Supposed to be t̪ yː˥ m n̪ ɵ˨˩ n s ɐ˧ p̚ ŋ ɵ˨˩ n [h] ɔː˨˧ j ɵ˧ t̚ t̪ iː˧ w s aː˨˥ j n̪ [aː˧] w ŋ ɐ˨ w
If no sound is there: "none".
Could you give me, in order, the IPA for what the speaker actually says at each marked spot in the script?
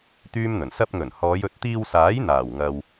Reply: h, aː˨˩

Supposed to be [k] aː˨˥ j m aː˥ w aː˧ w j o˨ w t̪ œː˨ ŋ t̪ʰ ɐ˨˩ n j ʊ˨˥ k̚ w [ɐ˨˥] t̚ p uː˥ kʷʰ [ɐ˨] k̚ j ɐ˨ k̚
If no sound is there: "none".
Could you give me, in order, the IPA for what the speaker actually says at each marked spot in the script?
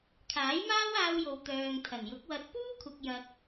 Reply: kʰ, ɐ˨, ɐ˨

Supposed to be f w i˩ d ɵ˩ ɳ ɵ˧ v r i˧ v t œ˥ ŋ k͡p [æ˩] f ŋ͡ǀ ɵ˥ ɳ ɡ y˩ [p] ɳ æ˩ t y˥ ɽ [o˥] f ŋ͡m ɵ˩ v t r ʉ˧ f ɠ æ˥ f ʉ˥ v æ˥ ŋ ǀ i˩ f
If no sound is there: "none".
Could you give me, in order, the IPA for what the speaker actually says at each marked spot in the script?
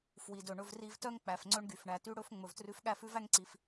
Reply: æ˩, f, ɵ˥

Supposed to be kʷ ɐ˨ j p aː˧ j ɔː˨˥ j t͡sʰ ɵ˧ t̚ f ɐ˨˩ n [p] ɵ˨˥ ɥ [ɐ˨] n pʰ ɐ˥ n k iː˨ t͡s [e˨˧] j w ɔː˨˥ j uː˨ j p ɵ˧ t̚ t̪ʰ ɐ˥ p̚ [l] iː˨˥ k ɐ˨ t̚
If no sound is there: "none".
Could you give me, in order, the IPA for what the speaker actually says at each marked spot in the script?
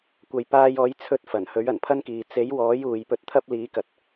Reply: h, ɐ˨˩, e˨˥, l

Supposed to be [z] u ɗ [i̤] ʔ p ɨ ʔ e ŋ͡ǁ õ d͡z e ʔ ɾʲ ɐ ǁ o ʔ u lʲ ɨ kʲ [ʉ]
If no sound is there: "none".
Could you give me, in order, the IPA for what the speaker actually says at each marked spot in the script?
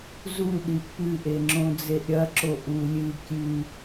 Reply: z, i, ʉ

